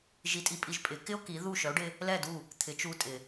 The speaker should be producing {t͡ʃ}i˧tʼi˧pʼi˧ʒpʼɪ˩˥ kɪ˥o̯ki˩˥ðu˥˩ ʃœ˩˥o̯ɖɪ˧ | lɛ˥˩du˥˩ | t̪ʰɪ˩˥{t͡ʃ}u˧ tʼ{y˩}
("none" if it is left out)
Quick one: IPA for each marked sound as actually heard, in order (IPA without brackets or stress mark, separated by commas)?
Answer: ʒ, t͡ʃ, ɪ˩